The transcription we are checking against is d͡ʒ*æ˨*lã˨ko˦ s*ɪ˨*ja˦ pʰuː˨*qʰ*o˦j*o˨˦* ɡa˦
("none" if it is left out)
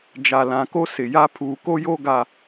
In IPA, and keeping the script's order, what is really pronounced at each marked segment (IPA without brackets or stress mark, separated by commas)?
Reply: a˨, ɪ˨, k, o˦